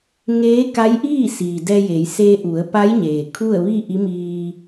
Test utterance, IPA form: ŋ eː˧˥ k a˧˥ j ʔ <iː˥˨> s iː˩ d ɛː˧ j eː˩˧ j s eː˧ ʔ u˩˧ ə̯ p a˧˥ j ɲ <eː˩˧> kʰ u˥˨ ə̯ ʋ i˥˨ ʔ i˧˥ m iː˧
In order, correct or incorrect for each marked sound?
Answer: correct, incorrect: eː˩

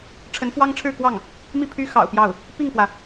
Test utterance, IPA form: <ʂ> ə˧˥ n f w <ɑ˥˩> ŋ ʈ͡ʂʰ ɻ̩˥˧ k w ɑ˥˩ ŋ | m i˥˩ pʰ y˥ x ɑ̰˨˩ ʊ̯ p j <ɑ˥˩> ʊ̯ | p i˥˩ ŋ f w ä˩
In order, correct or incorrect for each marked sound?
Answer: incorrect: ʈ͡ʂʰ, incorrect: ɑ˥, correct

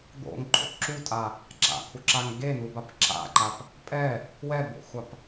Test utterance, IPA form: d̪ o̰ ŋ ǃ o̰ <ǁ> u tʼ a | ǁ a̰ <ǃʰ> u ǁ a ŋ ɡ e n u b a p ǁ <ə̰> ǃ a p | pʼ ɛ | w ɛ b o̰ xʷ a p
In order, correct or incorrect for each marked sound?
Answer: correct, incorrect: kʰ, incorrect: a̰

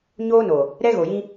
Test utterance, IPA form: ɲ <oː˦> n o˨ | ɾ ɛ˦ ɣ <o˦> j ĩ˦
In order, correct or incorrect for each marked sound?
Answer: correct, incorrect: o˨

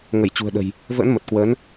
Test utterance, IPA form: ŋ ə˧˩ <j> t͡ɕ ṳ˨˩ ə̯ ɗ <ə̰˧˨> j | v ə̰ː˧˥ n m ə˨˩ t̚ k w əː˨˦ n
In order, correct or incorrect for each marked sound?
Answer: correct, incorrect: ə̤˨˩

